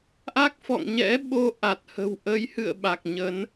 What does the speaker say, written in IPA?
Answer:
ʔa˦˥k̚fɔ̰˧˨ŋɲɛ̰˧˥ ɓo˧ʔa˨˩t̚hə̤˨˩w ʔə˨˦jhɨ̰˧˨ə̯ ɓa˨˩k̚ɲə˨˦n

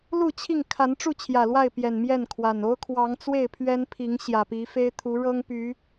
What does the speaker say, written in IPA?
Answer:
lu˥˨t͡ɕʰi˥˨ŋ kʰa˨˦nʈ͡ʂu˥˨ t͡ɕʰjä˨˩lwa˥˨ɪ̯pjɛ˨˩n mjɛ˥˨nkʰwa˨˩n o˦ʊ̯kʰwɑ˨˦ŋ t͡swe˥˨ɪ̯pʰɥɛ˦npʰi˨˦ŋ ɕjä˨˩pi˨˦fe˦ɪ̯ t̪ʰu˨˦ɻɤ˦ŋ py˨˦

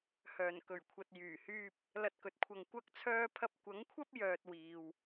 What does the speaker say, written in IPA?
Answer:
hœː˨˩nkɵ˨˩ɥkʷʰɐ˨t̚ jyː˨˩hyː˧p̚ | lɐ˧t̚kɵ˨t̚kʷʰɐ˧ŋ kʷɐ˧k̚t͡sʰœː˧ pʰɐ˧p̚kʷɐ˨˥ŋkʷʰɐ˥p̚ jœː˧t̚wiː˨w

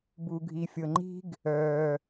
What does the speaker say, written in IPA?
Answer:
bu˨ɡʱi˨fʲɤ˨ŋ͡ǃi̤˦ɡ | œː˨

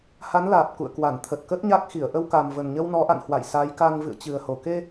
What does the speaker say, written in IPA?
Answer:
ha˨˦nlaː˨˩p̚ kṵ˧˨ə̯kwa˧˩n t̪ʰə˨˩t̚kə˦˥t̚ɲa˦˥k̚xi˧˩ə̯ ʔə˧wka˨˩mvə˨˩nɲə˧w nɔ˨˦ʔa̰˧˨nhwa̰˧˨j sa˨˦jka˧ŋ vɨ̰˧˨ə̯t͡ɕɨ˨˩ə̯ ho˨˩ ke˧

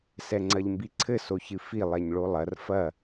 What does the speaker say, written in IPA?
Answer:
sɛŋ͡ǀɐʎmbiǀʰɘ soçɨfi lˠɛɲɭolˠɐr fɐ

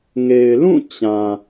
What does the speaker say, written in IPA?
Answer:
ŋe˨ɪ̯ lũ˦˨ t͡ɕã˨

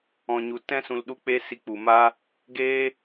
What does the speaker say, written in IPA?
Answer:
ɔ̃˨ɲu˨ tɛ̃˦ sũ˨lɗu˧k͡pe˧ si˧k͡pu˨ma˦ | ɡeː˦

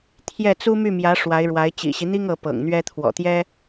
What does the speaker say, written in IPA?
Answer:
t̪ʰjɛ˥˩ t͡su˥my˥˩mjä˧˥ ʂwa˧˥ɪ̯ɻwa˧˥ɪ̯ t͡ɕḭ˨˩ɕi˦n̪i˥ŋ ɤ˧˥pɤ̰˨˩ŋn̪ɥɛ˥ t̪ʰwɔ̰˨˩t̪jɛ˥

